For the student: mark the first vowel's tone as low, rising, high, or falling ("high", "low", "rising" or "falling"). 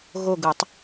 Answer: falling